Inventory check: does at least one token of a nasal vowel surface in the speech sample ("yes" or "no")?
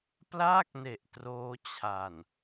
no